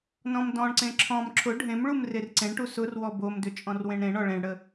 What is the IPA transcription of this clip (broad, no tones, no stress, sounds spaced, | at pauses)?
n ɔ̃ m d ɔ̃ ɳ ǀ ẽ ǁʰ ɔ̃ m ǁʰ ʊ ɖʱ ẽ m ɭ u m r e r ǀ ẽ ɳ ʈ u s ʊ r w ɔ b o m d ʏ t͡ʃʼ ɔ̃ r w ẽ ɳ ɾ ẽ ɳ ɔ ɭ ẽ ɳ ɽ ə